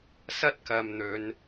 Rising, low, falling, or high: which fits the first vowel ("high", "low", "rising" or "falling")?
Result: high